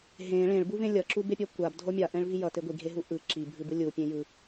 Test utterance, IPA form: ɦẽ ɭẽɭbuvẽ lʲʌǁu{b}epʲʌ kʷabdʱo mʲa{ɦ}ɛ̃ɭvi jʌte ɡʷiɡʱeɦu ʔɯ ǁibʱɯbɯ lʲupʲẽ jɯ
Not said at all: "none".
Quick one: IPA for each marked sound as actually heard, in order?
b, ʔ

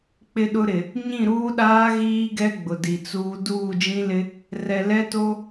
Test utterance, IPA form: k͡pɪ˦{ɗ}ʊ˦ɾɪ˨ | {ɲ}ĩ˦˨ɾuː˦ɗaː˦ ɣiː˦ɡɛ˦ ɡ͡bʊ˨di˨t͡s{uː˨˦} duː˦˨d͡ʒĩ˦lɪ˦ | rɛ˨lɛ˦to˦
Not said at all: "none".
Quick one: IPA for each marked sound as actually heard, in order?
ɗ, ɲ, uː˦

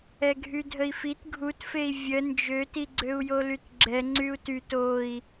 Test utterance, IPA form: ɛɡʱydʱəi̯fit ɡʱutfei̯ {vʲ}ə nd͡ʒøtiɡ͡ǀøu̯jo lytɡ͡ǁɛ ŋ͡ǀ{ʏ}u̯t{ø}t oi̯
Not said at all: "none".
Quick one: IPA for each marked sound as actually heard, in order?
vʲ, y, y

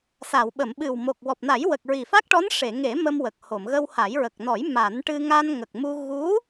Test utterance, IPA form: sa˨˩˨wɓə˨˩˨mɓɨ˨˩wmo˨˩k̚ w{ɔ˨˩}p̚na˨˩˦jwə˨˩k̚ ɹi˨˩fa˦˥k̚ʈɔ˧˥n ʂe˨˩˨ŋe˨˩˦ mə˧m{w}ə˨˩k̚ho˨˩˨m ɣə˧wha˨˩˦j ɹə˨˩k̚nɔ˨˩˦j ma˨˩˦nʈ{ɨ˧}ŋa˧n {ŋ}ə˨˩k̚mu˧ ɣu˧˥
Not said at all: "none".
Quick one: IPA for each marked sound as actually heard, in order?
ɔ˨˩, w, ɨ˧, ŋ

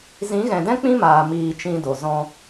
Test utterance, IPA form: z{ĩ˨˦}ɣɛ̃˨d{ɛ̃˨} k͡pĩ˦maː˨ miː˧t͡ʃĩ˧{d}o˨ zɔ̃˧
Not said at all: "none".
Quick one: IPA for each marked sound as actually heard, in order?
ĩ˨˦, ɛ̃˦, d

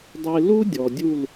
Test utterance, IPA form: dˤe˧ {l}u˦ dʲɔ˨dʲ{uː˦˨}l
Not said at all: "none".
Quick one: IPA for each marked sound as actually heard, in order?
l, u˦˨

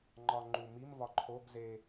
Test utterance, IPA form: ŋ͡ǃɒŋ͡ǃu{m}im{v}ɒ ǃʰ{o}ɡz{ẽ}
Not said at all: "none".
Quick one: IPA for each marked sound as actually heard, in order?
m, v, o, e

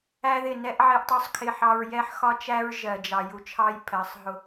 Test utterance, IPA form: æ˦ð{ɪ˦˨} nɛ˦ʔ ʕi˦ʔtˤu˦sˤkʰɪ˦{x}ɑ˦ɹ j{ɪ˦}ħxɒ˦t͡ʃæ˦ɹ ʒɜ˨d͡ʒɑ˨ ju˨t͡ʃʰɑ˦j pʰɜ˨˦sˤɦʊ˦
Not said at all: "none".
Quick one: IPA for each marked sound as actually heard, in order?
ɪ˦˨, ħ, ɛ˦

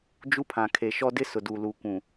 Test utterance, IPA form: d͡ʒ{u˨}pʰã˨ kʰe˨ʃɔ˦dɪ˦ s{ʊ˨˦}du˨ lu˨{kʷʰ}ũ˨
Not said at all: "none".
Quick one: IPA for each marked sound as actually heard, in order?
u˦, ʊ˨, kʷ

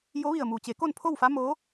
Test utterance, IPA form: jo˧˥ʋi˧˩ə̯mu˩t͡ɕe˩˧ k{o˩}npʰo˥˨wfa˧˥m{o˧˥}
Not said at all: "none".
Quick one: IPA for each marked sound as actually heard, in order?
o˥˨, oː˧˥

